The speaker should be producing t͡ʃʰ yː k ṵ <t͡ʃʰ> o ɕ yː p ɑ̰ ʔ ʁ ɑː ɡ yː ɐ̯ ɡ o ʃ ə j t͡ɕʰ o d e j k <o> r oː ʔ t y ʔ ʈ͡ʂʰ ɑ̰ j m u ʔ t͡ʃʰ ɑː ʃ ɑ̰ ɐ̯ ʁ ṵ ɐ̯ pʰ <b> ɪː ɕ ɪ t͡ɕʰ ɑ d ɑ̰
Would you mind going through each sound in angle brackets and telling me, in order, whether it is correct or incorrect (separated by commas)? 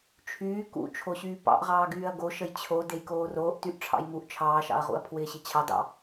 correct, incorrect, incorrect